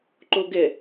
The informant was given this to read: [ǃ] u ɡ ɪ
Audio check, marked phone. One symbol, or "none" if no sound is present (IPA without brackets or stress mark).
ǃ